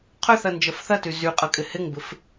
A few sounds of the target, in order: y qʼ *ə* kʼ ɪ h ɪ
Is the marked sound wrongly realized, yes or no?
yes